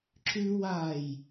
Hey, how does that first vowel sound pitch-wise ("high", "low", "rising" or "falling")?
high